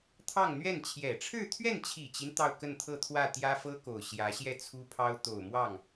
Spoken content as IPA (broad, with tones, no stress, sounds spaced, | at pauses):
t̪ʰ ɑ˥˧ ŋ n̪ ɥ ɛ˥˩ n t͡ɕʰ j ɛ˨˩ ʈ͡ʂʰ ɻ̩˥˧ t̪ʰ ɥ ɛ˥˩ n t͡ɕʰ i˨˩ t͡ɕ i˦ n t̪ ɑ˥˧ ʊ̯ k ə˥˧ n t̪ʰ ɤ˥˧ t̪ʰ w ä˥˩ t̪ j ä˥ f ɤ˥ k o˨˩ ʊ̯ ɕ j ä˧˥ ɕ j ɛ˥˩ t͡sʰ u˥ pʰ ɑ˥ ʊ̯ t̪ o˨˩ ʊ̯ m w ɑ˥˩ ŋ